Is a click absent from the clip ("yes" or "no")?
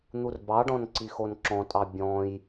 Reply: no